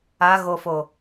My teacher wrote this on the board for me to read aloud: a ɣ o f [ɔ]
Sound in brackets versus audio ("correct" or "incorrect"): incorrect